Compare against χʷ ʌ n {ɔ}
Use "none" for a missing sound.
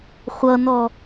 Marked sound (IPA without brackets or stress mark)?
ɔ